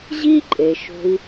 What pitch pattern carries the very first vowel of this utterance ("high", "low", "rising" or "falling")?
high